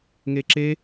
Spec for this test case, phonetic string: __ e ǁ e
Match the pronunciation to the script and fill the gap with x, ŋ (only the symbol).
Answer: ŋ